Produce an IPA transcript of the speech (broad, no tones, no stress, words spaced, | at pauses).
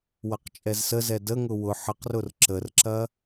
wɐqt͡ʃʼɛzsəzɛ dəŋʊ wʊ ħəqrʊr ǁərǁɐ